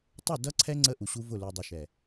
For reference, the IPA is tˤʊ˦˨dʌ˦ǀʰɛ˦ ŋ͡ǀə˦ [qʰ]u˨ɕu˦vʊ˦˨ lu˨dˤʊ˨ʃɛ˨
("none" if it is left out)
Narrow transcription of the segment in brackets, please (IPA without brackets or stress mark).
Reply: ʔ